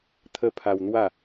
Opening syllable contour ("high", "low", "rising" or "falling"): high